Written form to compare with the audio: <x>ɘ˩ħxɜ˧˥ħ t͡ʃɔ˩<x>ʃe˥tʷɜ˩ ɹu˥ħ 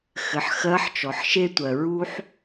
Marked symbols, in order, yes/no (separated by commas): yes, no